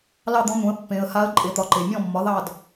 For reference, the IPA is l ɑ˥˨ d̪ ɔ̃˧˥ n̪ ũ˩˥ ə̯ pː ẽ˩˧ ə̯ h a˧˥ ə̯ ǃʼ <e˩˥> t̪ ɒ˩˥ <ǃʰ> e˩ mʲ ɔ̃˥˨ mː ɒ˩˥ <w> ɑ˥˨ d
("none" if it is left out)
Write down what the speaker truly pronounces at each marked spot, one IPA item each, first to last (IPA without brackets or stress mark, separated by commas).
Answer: e˩˥, ǃ, ð